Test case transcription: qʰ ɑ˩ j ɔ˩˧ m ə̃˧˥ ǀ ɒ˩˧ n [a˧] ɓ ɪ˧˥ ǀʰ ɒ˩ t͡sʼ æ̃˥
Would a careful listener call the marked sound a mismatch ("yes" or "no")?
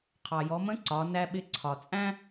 yes